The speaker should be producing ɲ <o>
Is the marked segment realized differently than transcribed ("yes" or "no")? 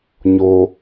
no